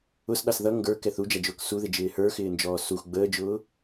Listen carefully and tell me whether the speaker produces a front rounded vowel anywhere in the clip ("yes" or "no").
no